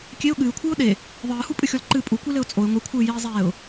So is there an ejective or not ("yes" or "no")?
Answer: yes